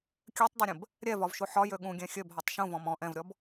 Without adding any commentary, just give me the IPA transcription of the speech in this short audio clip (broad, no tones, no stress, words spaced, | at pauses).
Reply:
kʲøtˤdˤøɾʲə̃b | ɾʲɛvɒvʃu ħɒjø ɠũɡʲɛ̃ xʲøbɦɒtˤ ʃũvɔ̃m ɔ̃ ʔɛ̃vɾʲɔb